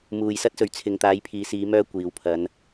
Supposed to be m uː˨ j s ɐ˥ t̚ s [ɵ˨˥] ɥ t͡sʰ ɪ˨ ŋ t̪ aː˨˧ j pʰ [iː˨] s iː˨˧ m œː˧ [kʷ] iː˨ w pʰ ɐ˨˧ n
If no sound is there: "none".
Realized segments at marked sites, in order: ɵ˨, iː˨, kʷ

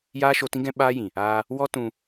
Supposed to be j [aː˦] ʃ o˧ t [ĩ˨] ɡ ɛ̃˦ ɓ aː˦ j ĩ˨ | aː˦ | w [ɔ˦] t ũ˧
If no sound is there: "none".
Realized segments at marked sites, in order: aː˦, ĩ˦, ɔ˦

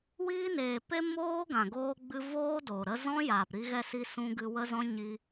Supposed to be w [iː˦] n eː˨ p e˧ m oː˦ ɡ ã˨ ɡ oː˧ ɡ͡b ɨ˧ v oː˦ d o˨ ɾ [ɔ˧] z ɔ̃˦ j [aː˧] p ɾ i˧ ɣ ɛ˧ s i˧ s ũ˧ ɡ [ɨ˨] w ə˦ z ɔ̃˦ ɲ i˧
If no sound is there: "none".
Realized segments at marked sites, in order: iː˧, ə˧, aː˨, ɨ˧

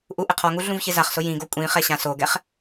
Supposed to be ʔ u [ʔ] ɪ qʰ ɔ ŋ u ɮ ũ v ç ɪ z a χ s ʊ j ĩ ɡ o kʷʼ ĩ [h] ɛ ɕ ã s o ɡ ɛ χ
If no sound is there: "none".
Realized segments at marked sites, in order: ʔ, χ

